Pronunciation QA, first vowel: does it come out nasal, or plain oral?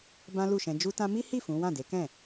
nasal